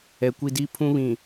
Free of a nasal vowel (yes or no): no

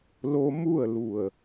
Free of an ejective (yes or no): yes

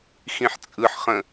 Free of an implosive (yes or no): yes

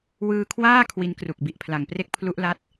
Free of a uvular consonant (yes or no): yes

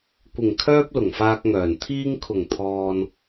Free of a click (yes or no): yes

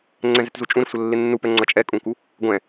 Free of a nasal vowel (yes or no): no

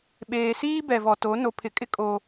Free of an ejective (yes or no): no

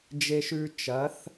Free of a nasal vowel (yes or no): yes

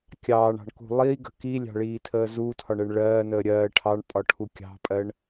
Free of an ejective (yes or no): no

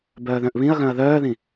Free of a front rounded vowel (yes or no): no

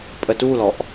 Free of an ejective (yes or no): no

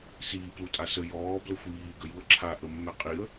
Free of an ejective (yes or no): no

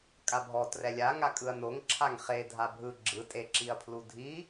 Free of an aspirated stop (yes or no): no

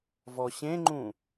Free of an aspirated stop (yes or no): yes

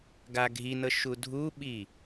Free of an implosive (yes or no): no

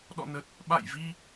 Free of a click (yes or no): yes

